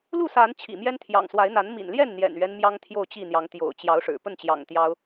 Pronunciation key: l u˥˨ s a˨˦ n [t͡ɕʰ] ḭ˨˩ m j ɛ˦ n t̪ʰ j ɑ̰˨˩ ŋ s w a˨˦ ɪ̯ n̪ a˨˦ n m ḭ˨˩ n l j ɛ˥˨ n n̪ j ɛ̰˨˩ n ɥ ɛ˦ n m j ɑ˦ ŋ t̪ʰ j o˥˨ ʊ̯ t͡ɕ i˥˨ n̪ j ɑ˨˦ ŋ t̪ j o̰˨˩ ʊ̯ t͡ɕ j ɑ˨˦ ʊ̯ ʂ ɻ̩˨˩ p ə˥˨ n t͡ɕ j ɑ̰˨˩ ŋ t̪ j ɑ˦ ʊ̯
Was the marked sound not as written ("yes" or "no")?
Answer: no